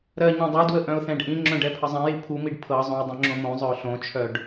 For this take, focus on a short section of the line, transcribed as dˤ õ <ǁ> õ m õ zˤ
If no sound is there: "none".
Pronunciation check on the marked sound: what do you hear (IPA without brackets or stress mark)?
ŋ͡ǁ